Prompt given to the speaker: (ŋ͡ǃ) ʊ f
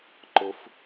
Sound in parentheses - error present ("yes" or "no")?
yes